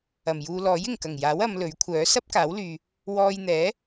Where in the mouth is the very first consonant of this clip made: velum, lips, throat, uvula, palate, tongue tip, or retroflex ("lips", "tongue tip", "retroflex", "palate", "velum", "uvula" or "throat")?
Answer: lips